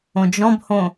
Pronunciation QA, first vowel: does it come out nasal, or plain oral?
nasal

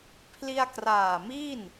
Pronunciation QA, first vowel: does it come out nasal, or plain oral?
oral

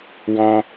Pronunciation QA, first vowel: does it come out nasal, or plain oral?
nasal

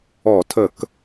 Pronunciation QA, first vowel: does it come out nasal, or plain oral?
oral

